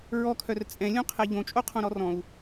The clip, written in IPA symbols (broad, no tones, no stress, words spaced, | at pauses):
ɹɔkʰœr t͡sʼɛ̃lʲõqʰɛ ʎõt͡ʃʼoqʰõɾɔ rɔ̃u̯